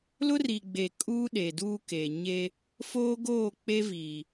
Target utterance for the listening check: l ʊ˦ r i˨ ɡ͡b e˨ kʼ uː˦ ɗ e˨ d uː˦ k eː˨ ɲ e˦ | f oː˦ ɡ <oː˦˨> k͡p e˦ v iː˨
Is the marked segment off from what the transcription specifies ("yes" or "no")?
no